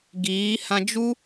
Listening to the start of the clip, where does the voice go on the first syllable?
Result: rising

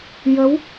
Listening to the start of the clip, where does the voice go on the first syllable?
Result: rising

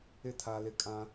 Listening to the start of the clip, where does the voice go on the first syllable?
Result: high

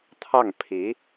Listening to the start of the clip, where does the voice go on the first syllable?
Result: falling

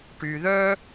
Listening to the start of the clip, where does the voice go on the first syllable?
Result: low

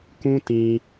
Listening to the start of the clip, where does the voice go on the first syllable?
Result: high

